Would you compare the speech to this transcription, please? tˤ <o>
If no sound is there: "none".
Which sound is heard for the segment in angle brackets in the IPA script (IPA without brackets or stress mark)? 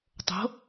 o̤